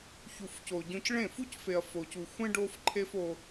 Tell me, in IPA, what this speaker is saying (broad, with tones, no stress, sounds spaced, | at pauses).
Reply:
ç u˨ f c o˨ ɟ õ˦ c ɭ ẽ˦˨ f u˦ c f e˨ ɐ̯ f o˨ c u˨ xʷ ẽ˦ ɖ o˦ f ǃʰ e˦ f o˦